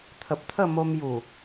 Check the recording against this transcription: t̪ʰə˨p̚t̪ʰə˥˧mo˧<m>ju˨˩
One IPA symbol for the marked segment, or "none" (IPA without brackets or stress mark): m